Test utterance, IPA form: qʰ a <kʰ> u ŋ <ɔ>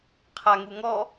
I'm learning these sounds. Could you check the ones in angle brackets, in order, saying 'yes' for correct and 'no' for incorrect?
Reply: no, yes

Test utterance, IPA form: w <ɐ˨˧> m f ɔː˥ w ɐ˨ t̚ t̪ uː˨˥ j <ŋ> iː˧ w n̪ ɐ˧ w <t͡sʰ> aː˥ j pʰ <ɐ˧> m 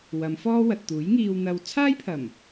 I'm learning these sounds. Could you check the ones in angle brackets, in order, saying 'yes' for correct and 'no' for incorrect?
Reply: yes, yes, yes, no

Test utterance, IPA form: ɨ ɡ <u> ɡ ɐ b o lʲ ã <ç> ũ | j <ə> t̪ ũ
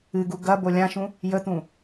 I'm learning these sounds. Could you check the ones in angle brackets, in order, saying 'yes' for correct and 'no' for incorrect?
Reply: yes, no, yes

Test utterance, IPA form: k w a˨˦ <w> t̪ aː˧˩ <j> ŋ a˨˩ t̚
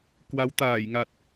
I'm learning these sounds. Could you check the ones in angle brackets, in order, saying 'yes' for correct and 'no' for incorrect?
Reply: yes, yes

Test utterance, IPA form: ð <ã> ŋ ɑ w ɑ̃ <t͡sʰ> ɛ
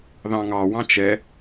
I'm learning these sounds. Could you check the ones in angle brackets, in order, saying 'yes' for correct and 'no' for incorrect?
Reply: no, no

